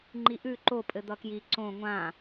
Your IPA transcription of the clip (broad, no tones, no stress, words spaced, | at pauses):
ŋ͡ǃiʔʉ ǃo pʼɘd̪ʌkji ǀõ ŋʷã